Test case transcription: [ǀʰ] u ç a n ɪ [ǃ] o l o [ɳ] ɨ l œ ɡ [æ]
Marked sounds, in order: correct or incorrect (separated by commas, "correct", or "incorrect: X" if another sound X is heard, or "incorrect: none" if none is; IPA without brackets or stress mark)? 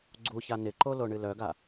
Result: incorrect: ɡ͡ǀ, correct, correct, incorrect: a